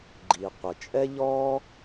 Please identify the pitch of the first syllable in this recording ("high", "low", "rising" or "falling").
low